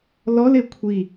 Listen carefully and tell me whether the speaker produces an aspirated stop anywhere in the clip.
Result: yes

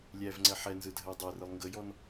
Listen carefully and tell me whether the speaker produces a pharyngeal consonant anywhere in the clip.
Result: yes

